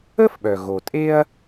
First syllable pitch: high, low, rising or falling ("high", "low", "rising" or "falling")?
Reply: high